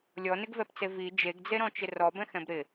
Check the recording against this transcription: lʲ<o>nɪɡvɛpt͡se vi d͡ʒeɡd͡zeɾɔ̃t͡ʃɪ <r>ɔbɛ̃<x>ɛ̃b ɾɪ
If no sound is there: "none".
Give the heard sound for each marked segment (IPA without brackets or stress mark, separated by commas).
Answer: ɔ, r, x